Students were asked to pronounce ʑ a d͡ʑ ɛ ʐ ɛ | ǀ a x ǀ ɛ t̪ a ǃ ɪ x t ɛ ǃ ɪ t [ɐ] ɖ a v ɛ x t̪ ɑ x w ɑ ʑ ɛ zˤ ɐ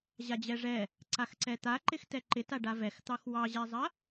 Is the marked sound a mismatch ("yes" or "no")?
yes